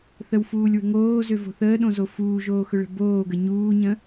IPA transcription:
θ ə w f uː lʲ w ə̤ ŋ oː z ø v o̤ θ əː ɗ õ z o f uː ʒ oː x ɵ ɭ ə̤ b oː ɡ ə ɲ uː ɲ ə̃

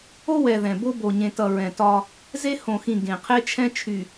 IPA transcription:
o˦ w ɛ˨ ð ɛ̃˨ b o˦ b o˨ ɲ ẽ˨ t ʌ˨ ɹ ɛ̃˨ t ɒ˦ | z e˦ h õ˨ x ĩ˨ ɡ ẽ˨ qʰ e˦ t͡ʃʰ ɛ̃˦ t͡ʃʰ y˨

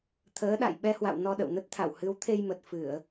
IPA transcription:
t̪ʰ əː˨˦ ɗ a̰˧˨ j ɓ ɛ˧ h w a̰˧˨ w n ɔ˧ ɗ ə̰˧˨ w n ə˦˥ t̚ t̪ʰ a̰˧˨ w h ɨ˨˦ w t̪ʰ e˧ j m ə˨˩ t̚ f ɨ˧˩˨ ə̯

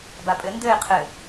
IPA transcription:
b a pʼ ɘ n d ɘ ɪ̯ qʰ ɘ

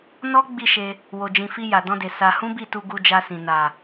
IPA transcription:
n ɔ˦ ɡ͡b i˦˨ ʃ e˧ | w o˨ d͡ʒ ĩ˨ f i˧ j a˨ d ɔ̃˧ d e˨ s a˧ h ũ˦ b i˦˨ t u˧ ɡ u˧ d͡ʒ a˧ s ĩ˨ n a˨

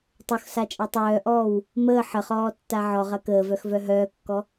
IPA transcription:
tˤ o x s a t͡ʃʼ ɐ tˤ œː ʔ ɔː w | m əː ħ ə χ ɔː tː a ʕ ɔ ʁ ɐ k əː v œ x v œ ɦ œː kː ɔ

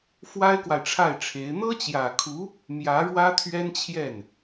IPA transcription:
f w a˥ ɪ̯ k w a˨ ɪ̯ ʈ͡ʂʰ a˥˩ ɪ̯ ʈ͡ʂʰ e˧˥ ɪ̯ n̪ ɤ˥ t͡ɕ j ä˨˩ kʰ u˧˥ | m j ä˧˥ ɻ w ä˥ t̪ʰ ɥ ɛ˥ n t͡ɕʰ j ɛ˥˩ n

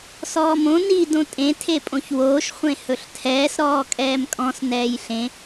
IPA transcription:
s ɔː m õ n i d õ tʼ ẽ tʰ e pʼ õ ç w oː ʃ χʷ ẽ h ɵ ɬ tʰ ɛː s ɾ ɔː kʼ ɛː m kʼ ɔ̃ s n ɛː j ɬ ẽ

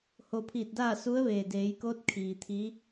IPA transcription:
h o˧˩ pʰ iː˧˩ t̚ d aː˥˨ s u˧˥ ə̯ ʋ eː˩ d eː˩˧ j k oː˧˥ t̚ kʰ iː˩ t̪ʰ i˧˥

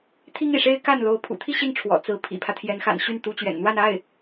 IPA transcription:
t̪ʰ i˥ ŋ ḭ˨˩ ʂ e˥ ɪ̯ k a˥˩ n l o˧˥ ʊ̯ pʰ ṵ˨˩ t̪ʰ i˥˧ ɕ i˥˩ ŋ ʈ͡ʂʰ w ɔ̰˨˩ t͡s ɹ̩˧˥ pʰ ḭ˨˩ pʰ ä˦ t̪ʰ j ɛ˧˥ n x a̰˨˩ n ɕ y˥˩ n t̪ u˧˥ t͡ɕ ɥ ɛ̰˨˩ n n̪ w a˥˧ n a˥˩ ɪ̯

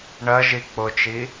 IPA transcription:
ɳ ɜ ʒ i k͡p ʊ t͡ʃ i

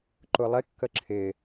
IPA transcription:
ǃ ʊ lˠ ɪ kː ə ǁʰ ɪ

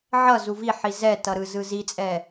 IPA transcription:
ʕ ʌ z u v i ħ i z ɛ t ʌ ɾ ɯ z ɯ z i t͡sʼ ɛ

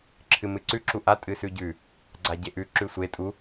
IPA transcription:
ǁʰ ɨ m ɨ ǀ ʉ ǁ u ʔ a tʼ ɨ s ʉ ɟ ʉ | ɡ͡ǀ a ɟ e ʔ ʉ ǁ ʉ sʷ e tʼ u

